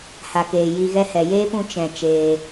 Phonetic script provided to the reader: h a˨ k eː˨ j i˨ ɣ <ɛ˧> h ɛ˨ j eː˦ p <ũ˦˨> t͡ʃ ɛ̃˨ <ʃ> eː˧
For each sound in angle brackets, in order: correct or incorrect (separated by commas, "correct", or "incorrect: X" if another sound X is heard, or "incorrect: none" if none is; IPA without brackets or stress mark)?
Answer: correct, incorrect: ũ˧, incorrect: t͡ʃ